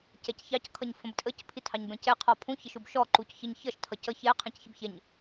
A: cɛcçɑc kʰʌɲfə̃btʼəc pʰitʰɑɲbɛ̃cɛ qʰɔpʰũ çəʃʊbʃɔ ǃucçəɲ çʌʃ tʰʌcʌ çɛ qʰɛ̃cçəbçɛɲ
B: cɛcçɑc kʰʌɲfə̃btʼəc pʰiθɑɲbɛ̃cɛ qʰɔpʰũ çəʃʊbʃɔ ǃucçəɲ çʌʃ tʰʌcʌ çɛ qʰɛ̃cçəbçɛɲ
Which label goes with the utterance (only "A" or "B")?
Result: A